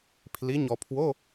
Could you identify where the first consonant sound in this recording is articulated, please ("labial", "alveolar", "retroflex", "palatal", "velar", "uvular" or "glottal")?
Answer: labial